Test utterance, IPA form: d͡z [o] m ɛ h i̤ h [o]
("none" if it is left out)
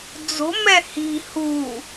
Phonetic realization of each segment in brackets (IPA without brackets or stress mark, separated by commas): o̤, u